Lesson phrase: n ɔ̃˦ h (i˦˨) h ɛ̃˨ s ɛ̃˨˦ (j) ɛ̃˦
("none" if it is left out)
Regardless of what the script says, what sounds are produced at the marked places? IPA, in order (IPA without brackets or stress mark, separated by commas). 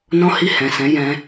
i˦˨, j